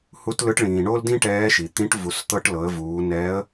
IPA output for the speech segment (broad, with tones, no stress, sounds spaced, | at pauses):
h u˧˥ t l ɯ˧˥ ʈ ɭ ĩː˩ ɳ o˥ l d ĩ˥ ʈ ɛː˧˥ ʃ i˩ t̪ ĩ˧˥ ʈ v u˩˧ s t̪ ɤ˧ ʈ l ɤ˩˧ ə̯ v uː˩˧ n ɛː˧˥ ə̯